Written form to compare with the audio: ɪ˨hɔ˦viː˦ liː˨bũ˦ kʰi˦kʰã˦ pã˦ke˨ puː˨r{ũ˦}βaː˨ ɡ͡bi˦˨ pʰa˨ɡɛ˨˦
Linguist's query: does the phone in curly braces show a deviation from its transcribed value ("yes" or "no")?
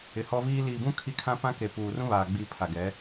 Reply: no